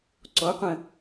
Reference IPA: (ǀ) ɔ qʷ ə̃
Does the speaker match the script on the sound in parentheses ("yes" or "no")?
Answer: yes